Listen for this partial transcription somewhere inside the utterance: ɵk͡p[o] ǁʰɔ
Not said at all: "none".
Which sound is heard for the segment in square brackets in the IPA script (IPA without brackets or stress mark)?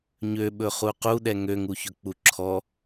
u